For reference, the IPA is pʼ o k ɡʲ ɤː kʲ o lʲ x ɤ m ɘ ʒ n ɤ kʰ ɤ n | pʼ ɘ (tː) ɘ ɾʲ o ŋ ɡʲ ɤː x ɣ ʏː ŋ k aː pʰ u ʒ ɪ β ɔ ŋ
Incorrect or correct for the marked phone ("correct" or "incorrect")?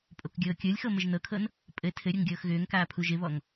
incorrect